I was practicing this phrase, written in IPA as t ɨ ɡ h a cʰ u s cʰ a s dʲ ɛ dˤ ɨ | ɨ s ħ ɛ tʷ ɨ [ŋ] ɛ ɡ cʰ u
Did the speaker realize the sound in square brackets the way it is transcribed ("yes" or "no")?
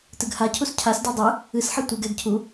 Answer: no